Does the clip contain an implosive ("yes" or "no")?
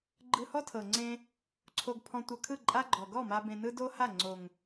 no